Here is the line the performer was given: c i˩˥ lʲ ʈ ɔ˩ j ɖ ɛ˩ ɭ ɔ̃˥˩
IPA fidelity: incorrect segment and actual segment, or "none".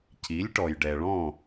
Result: none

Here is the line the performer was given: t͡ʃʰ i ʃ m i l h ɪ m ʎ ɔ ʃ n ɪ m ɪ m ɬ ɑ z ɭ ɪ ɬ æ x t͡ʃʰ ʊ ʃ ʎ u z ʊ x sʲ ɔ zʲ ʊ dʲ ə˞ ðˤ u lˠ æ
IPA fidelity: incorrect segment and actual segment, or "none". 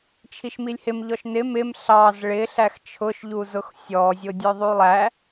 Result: l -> lʲ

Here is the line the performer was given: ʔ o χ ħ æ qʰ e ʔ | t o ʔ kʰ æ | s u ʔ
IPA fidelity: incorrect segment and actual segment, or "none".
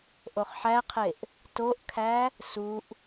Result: none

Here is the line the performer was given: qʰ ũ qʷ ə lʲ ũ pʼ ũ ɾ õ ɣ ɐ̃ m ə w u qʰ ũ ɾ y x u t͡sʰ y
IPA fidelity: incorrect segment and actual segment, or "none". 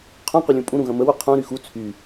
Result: õ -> ũ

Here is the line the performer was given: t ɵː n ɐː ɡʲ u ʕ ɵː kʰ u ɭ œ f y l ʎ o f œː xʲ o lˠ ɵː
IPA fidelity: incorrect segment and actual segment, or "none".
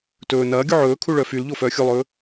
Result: none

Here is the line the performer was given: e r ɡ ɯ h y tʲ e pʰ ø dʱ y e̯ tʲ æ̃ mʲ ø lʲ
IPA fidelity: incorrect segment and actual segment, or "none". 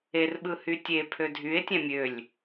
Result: ɡ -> ɓ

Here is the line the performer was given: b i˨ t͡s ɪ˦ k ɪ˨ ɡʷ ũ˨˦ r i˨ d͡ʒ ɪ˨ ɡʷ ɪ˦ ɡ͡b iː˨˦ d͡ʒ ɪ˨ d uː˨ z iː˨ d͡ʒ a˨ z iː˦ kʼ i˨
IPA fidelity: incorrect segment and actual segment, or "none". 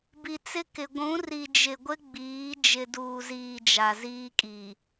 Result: none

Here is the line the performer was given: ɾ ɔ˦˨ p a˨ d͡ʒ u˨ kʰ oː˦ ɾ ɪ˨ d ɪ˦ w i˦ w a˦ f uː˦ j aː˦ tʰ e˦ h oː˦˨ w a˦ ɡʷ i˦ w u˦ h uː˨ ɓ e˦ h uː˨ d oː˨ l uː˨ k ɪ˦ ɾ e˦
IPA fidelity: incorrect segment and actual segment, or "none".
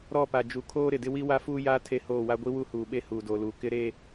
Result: none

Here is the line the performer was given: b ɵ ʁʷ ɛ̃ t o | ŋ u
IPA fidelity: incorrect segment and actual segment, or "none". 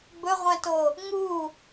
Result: none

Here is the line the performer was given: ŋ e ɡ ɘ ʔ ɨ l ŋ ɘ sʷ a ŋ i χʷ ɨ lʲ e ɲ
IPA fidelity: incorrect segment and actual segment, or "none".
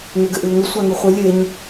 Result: i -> ɨ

